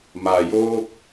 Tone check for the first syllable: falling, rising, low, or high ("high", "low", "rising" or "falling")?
low